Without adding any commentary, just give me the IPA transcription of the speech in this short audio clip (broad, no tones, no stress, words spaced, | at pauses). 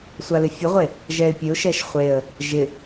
sʷalɪfʲəʁʷe | ʒɛɪ̯pʲəʊ̯ʃɛʃ χʷeə̯ | ʒɪ